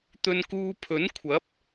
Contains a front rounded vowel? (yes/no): no